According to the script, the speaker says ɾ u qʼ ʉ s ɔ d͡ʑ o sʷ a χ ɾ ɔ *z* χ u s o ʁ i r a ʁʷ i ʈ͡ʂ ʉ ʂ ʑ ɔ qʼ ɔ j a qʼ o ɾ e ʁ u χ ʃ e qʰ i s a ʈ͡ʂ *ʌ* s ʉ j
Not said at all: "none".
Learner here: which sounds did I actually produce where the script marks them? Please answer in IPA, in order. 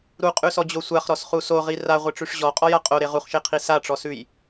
s, ɔ

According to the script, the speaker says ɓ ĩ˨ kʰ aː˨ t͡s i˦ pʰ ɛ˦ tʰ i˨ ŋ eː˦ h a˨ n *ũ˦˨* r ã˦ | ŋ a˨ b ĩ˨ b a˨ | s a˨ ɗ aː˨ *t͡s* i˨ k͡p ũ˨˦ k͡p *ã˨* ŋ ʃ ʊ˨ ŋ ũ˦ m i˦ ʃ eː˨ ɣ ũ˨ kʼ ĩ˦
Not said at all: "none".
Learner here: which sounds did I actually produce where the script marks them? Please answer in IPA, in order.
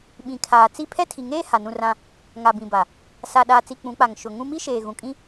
ũ˦˨, t͡s, a˨

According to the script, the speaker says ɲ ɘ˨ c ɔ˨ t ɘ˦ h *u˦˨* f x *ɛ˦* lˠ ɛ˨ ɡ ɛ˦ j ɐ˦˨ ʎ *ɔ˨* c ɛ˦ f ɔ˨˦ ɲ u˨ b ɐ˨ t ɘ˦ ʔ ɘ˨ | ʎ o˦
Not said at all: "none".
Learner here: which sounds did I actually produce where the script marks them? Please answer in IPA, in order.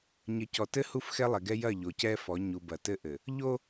u˦˨, ɛ˦, o˨

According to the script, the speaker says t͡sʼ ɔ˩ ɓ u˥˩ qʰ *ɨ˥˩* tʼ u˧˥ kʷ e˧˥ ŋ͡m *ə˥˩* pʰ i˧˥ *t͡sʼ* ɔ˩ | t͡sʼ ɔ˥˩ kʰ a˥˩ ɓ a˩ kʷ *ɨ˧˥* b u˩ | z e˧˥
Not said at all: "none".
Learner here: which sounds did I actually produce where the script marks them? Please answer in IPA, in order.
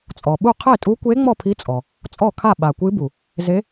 e˥˩, ɔ˥˩, t͡sʼ, ɨ˧˥

